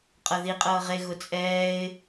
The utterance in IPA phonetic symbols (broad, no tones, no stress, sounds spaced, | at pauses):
qʼ ɤ ð i qʼ ɤː ʁ e ɣ ʊ t͡sʼ ɛː ɪ̯